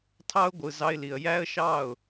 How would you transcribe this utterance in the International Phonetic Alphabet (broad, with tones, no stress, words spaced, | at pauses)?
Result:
tʰɑ˦ʊ̯ ɡʷɯ˨ zɑ˧ɪ̯li˨ə̯ jæ˦ə̯ ʃɑ˦˨ʊ̯